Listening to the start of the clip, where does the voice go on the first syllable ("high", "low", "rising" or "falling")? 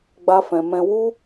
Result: high